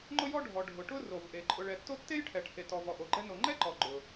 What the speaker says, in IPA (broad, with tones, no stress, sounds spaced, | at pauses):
ŋ͡ǃ ʊ˥ j ɔ˥ ɖʱ ɔ˩ ɖʱ ʊ˩ ʈ ʊ˥ r o˩ v ʔ e˩ ǃʼ ʊ˩ ɭ ɛ˩ tː o˥ tː e˥ j ʈʰ ɛ˩ ʈʰ e˩ t ɔ˩ v ɔ˩ ʔ o˩ ɡ͡ǃ ɛ˥ n o˩ ŋ͡ǃ ɛ˥ ǃ ɔ˩ ɡ͡ǃ ʊ˩